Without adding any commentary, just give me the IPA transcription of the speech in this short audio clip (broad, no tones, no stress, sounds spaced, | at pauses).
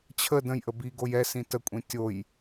t͡ɕʰ ə d ə̃ j ʔ ə b i ɡ o j ɛ s ĩ t ə kʷʼ ĩ tʲ o j